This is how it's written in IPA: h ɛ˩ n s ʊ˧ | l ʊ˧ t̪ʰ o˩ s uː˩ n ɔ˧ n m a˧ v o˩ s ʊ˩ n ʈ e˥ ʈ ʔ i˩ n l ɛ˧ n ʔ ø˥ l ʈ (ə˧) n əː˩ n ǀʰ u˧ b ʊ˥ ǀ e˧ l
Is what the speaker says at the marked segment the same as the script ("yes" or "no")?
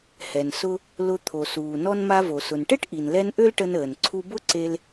yes